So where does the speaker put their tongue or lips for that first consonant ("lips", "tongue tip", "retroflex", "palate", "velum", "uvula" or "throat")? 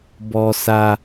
lips